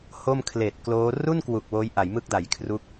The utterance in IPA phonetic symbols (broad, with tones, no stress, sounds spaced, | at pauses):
h o˥˩ m kʰ l eː˨˩ t̚ k l oː˦˥ r u˥˩ n k w u˨˩ k̚ w oː˦˥ j ʔ a˩˦ j m ɯ˥˩ k̚ d a˨˩ j kʰ r u˥˩ k̚